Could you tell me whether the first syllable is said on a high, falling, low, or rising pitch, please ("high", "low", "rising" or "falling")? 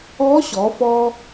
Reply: rising